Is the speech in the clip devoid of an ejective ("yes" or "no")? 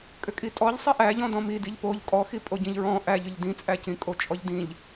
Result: no